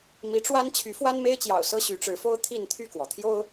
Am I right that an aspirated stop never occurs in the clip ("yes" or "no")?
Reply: no